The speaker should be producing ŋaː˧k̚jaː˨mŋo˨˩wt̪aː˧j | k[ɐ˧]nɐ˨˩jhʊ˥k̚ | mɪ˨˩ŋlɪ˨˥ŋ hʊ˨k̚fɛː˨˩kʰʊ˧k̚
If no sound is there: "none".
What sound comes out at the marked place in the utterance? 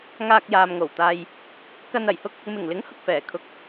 ɐ˧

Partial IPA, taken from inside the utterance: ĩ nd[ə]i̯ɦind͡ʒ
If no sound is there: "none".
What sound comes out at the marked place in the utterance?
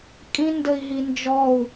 ə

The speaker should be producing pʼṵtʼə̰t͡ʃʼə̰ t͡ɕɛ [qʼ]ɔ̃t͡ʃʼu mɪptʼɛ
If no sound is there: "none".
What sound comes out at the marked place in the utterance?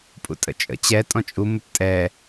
tʼ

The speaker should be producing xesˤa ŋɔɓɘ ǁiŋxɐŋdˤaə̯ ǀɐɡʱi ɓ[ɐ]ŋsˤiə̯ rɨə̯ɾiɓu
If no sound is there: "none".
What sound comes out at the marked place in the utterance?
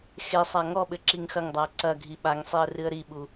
a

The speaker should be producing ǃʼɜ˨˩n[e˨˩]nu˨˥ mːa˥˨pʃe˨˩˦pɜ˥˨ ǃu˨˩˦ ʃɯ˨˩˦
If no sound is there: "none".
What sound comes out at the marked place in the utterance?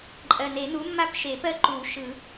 e˨˩˦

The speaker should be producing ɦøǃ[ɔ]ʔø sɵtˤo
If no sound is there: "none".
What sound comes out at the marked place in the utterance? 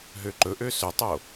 ɵ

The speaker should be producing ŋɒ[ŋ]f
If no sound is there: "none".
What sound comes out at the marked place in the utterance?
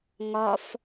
none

